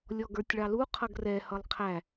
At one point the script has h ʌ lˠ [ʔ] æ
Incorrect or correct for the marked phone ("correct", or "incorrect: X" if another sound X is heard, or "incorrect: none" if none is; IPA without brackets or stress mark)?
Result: incorrect: qʰ